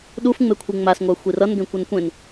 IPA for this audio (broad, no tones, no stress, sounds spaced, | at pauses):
ɗ u f ŋ͡m e kʷʰ i ŋ͡m a s ŋʷ a xʷ i r ʌ n ɡ ẽ kʷ ʌ n kʷ ẽ n